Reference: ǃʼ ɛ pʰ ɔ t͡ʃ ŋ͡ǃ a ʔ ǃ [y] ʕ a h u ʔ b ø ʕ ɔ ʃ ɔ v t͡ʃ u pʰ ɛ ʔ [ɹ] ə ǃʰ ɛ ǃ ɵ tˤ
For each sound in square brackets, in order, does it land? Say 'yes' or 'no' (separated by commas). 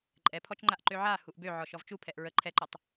no, yes